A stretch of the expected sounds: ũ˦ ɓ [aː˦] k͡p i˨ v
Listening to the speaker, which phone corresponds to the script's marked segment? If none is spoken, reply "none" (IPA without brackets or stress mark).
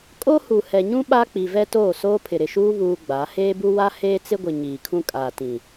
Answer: a˦